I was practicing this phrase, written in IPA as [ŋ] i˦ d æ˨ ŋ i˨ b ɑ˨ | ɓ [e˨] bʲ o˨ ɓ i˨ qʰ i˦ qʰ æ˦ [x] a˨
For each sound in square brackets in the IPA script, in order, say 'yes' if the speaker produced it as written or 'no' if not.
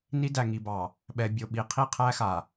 no, no, yes

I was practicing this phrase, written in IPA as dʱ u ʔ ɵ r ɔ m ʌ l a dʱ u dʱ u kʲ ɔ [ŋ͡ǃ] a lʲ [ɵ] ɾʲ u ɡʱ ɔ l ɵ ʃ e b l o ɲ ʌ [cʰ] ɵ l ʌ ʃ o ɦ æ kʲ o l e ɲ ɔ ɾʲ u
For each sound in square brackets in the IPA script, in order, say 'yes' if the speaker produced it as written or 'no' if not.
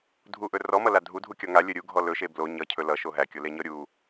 no, yes, yes

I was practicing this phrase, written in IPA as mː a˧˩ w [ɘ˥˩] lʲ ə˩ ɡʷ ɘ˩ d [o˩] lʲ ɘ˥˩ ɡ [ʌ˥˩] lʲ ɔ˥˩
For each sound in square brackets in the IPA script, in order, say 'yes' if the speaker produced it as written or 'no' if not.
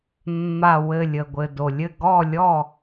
no, yes, no

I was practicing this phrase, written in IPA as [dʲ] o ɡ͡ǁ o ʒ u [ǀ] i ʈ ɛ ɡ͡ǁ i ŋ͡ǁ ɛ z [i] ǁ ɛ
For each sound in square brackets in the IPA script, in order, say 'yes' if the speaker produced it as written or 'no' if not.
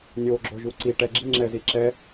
no, yes, yes

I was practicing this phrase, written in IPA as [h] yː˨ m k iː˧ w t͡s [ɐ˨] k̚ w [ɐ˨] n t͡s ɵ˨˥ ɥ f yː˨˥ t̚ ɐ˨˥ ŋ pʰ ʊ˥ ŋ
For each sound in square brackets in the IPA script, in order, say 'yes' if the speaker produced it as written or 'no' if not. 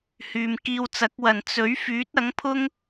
yes, no, no

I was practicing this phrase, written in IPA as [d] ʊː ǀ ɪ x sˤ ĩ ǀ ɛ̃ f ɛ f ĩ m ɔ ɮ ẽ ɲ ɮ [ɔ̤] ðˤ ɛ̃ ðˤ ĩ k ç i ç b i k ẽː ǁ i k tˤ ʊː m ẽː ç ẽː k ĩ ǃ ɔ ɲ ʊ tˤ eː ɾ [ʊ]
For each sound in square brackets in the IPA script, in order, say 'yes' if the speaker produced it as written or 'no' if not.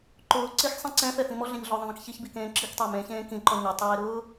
no, no, no

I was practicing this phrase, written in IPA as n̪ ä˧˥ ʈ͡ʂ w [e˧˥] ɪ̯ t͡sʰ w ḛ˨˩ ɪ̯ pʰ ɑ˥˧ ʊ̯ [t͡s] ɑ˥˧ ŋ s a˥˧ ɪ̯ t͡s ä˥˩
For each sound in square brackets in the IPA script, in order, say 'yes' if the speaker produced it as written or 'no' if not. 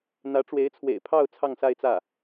yes, no

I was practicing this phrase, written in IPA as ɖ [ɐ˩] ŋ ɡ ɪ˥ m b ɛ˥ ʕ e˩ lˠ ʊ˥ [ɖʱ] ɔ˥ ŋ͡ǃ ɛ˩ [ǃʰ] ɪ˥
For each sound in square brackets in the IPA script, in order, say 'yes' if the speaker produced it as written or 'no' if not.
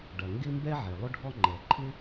yes, yes, yes

